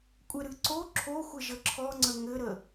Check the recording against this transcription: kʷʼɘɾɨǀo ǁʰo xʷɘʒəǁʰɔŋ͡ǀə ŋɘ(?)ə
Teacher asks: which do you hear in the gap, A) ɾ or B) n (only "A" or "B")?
A